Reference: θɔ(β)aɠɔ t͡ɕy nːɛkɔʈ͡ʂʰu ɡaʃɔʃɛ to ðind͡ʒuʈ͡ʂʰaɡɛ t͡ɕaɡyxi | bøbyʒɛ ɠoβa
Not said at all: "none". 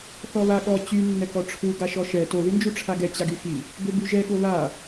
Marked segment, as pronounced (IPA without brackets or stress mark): β